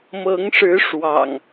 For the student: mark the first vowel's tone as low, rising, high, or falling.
rising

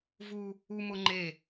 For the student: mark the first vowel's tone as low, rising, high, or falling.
high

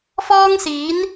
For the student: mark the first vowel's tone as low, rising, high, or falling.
high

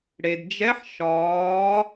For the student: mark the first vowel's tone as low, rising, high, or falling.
low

